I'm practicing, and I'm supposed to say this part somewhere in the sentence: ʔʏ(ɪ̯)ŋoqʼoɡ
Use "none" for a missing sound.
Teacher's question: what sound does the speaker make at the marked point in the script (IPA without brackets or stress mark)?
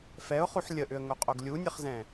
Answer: ə̯